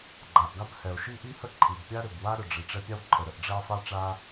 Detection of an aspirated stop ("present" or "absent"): present